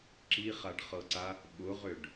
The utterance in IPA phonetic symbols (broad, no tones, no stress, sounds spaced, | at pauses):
ǁ i χ a ɖ χ ɤ ǀ a | ɓ ʊ ʁ ʏ ɖ